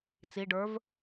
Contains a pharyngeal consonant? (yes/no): no